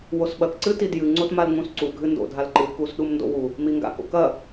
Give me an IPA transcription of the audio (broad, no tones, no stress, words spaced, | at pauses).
wosɓɐk ǀɨtidjɨ ŋ͡ǀotmalŋ͡mũsǀu ɡʱɨndo̰ dʱalǃɨ kusɗumndo̰wu | miŋɡa̰ko̰kɐ